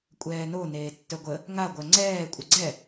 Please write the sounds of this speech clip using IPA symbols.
kʷʼ ɛː n o n eː tː œ ɡʷ ə | ŋ a ɡʷ œ ŋ͡ǀ ɛː kʷʼ ə ɡ͡ǀ ɛ

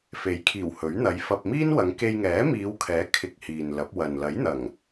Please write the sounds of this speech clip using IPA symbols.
f e˨˥ j kʰ iː˨˩ w h ɵ˨˥ ɥ n̪ ɐ˨˧ j f ɐ˧ p̚ m iː˥ n w ɐ˨˧ ŋ k e˧ j ŋ ɛː˨˥ m iː˨˧ w kʰ ɛː˨˥ kʰ ɪ˧ k̚ h iː˨ n l ɐ˨˥ p̚ w ɐ˨ n l ɐ˨˥ j n̪ ɐ˨˩ ŋ

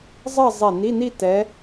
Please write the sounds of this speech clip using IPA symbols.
zˤ ɜ˥˧ zˤ ɛ˧˩ n i˧˥˧ n i˥˧ t ɛ˨˦

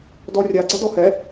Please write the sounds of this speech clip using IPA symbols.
d ɔ rʲ a ɡ͡ǀ a d ɔ h ɛ

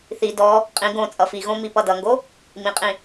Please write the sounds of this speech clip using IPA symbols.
θ i d ɔ | qʼ ĩ ɡ õ t͡sʼ ʌ f i ɣ õ m i p ʌ d ʌ ŋ ɡ o | m ĩ qʼ ĩ

